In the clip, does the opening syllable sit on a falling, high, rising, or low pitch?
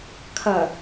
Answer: low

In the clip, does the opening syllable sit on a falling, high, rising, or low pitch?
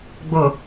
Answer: low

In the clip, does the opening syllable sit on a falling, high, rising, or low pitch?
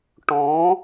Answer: rising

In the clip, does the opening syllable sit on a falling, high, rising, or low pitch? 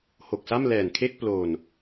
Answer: low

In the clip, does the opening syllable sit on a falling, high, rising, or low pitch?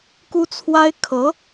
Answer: high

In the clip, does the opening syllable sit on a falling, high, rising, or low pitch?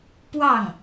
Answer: falling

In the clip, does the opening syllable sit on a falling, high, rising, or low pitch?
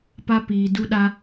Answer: high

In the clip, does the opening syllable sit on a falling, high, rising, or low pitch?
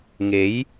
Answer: rising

